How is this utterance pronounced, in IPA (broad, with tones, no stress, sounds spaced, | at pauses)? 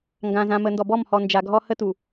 ŋ ɡ ã˨ z ã˨ m ə˨ n d ɔ˨ b ɔ˦˨ m h ɔ˨ n d͡ʒ a˨ ɡʱ ɔ˦ h ə˦ t u˨